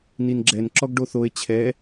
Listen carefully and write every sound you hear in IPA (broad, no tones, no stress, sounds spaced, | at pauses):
n i n ɡ͡ǁ ɛ n ǁ ɔ ɡ ɖ o θ o e̯ t͡ɕʰ ɛ